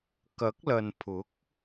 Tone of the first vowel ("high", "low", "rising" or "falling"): rising